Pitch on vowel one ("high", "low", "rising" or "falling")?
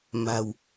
low